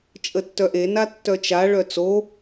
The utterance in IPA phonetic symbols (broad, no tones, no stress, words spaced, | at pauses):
t͡ʃʼətːœʔe natːœt͡ʃa ɭœt͡so